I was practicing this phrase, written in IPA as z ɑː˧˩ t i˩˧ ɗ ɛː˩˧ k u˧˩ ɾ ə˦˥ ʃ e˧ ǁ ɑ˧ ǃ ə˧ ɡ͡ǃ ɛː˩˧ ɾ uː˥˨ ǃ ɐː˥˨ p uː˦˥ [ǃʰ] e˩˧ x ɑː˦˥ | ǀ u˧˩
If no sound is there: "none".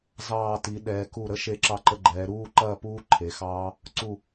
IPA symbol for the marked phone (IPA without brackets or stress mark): ǃʰ